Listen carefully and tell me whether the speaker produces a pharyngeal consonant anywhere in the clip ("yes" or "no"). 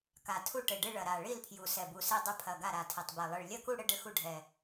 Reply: no